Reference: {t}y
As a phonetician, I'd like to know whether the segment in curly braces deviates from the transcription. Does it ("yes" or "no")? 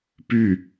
yes